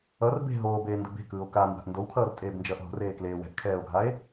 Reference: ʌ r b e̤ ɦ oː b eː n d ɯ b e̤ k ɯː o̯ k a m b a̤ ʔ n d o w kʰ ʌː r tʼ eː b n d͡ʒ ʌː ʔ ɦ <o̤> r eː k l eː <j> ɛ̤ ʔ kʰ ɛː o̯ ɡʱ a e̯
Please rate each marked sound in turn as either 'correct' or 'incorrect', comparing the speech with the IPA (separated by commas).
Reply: correct, incorrect